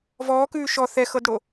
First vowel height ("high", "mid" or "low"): mid